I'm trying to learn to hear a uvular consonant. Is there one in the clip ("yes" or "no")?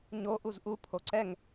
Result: no